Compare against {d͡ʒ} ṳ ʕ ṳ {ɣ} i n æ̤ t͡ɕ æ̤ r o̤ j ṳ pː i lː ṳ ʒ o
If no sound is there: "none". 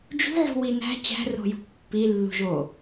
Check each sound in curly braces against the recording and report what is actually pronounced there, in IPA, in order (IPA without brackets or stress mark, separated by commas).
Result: d͡ʒ, w